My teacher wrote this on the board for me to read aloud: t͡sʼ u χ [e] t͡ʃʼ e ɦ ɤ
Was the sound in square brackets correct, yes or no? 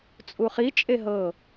no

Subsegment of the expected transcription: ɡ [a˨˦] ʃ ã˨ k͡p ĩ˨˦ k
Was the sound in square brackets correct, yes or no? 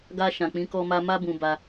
no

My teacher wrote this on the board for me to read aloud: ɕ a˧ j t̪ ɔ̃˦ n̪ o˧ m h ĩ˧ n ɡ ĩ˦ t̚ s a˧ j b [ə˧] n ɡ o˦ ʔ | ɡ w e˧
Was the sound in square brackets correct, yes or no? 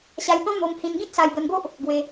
yes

